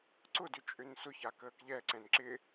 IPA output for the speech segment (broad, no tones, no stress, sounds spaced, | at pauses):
ǀ ʊ d ʏ t͡ʃʼ ʏ n s ʊ ç a k əː k ʎ ɛ ǀ ɛ̃ n ǁ ɪ